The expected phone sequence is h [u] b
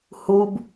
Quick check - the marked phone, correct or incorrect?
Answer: correct